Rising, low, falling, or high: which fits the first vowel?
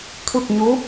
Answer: falling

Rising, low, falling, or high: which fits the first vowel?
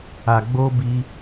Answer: low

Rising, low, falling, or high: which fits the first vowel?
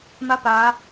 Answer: rising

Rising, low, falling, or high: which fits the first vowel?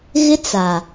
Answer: high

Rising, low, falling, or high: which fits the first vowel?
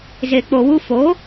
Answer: low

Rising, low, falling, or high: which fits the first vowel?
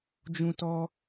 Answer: high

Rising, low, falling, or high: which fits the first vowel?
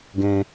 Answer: high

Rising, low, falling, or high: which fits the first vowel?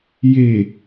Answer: low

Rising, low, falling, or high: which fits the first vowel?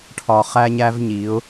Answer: low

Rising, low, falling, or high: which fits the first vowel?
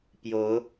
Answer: rising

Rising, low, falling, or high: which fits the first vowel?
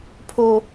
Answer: low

